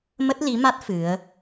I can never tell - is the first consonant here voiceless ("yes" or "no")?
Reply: no